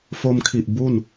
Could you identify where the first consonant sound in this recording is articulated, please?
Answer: labial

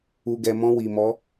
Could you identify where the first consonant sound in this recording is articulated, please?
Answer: velar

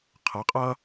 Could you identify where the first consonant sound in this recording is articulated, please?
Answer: uvular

